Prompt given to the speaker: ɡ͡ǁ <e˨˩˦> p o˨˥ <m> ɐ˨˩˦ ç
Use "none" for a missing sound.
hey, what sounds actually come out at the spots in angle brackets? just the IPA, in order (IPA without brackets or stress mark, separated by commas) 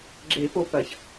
e˨˩˦, p